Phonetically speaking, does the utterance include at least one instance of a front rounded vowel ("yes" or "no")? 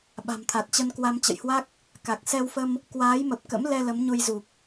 no